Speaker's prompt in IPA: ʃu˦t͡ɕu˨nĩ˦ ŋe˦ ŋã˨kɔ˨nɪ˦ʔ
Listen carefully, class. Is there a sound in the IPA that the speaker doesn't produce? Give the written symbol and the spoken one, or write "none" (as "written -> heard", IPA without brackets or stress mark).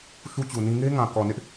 none